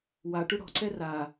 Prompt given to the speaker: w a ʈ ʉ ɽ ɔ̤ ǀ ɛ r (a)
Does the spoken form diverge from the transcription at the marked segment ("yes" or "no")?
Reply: no